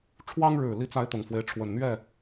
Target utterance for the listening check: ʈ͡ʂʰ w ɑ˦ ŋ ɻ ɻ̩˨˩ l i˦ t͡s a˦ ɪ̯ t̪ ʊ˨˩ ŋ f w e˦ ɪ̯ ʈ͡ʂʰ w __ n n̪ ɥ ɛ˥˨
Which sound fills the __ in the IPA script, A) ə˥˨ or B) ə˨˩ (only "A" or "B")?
B